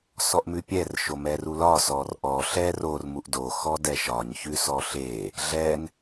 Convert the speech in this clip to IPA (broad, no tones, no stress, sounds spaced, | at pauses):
s ɔ ʔ m ʉ pʲ ɛ r ʃ o m ɛ r u l ɒ s ɔ r ʔ ɔ ɬ ɛ r o r m u ʔ d o x ɔ d ɛ ʃ ɒ ɲ ç ʉ s ɔ ɬ e | ɮ ɛ n